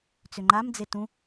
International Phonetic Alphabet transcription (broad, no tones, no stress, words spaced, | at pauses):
t͡sʏŋ͡ǃamd͡ze tũ